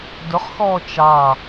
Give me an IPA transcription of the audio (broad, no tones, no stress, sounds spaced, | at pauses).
d ʊ χ x ɔː t͡ʃ ɑ